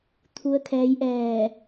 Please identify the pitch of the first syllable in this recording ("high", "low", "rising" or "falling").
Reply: rising